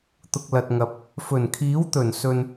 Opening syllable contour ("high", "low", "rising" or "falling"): low